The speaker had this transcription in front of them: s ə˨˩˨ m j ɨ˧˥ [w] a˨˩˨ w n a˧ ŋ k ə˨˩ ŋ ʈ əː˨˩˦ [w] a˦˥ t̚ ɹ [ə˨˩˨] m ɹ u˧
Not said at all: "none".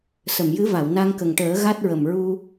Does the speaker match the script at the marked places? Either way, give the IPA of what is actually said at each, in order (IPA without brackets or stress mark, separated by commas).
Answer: v, ɣ, ə˨˩